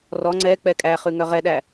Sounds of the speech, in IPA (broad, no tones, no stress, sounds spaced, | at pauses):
r ɔ ŋ͡ǀ ɛ k͡p ɛ kʼ æ χ ʉ ŋ œ ʁ ɛ ɗ æ